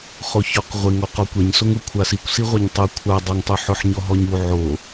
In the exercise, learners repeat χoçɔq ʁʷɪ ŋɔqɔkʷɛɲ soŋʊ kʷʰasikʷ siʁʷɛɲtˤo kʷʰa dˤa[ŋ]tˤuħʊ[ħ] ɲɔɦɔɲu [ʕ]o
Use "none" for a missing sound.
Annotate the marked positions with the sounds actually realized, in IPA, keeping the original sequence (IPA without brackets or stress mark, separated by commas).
ŋ, ħ, ʕ